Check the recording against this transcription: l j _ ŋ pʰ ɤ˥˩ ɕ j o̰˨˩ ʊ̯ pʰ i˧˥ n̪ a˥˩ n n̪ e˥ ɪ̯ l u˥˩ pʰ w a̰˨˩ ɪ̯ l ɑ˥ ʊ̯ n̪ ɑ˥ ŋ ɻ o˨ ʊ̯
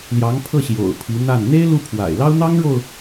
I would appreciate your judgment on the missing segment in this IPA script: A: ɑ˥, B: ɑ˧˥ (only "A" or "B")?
B